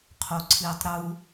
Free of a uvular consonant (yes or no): no